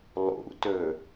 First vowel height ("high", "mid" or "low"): high